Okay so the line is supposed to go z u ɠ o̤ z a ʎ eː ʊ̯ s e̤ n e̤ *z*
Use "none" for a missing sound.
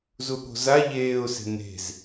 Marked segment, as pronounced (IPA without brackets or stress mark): z